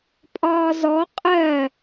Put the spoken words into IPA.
pʼ ɒː z ɔ qʼ ɜ

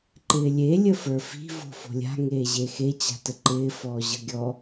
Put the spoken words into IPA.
ǃ ɪː lʲ e lʲ ə f ə˞ f i̤ v o̤ f o̤ lʲ a̤ ŋ eː ʑ e x e t͡ɕ a̤ t ə ǃ ɪː f ɔː ʑ ɤ ɡʲ ɔ

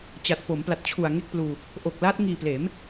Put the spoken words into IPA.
t͡ɕ a˨˩ t̚ p o˩˦ m p l a˨˩ t̚ t͡ɕʰ u˨˩ a̯ ŋ e˥˩ k̚ p l uː˧ | ʔ o˨˩ k̚ l aː˦˥ t̚ ŋ iː˨˩ p l eː˩˦ m

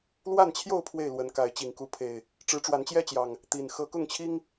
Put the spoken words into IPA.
l w a˥˨ n t͡ɕʰ j o˥˨ ʊ̯ pʰ w e˥˨ ɪ̯ l w ə˨˦ n k a˨˦ ɪ̯ t͡ɕ i˨˩ ŋ k u˨˦ pʰ e˨˩ ɪ̯ | ʈ͡ʂ ɻ̩˨˦ ʈ͡ʂ w a˨˦ n t͡ɕ j ɛ˦ t͡ɕ j ɑ˨˩ ŋ | t̪ i˨˩ n x ɤ˨˦ k ʊ˥˨ ŋ t͡ɕʰ i˦ ŋ

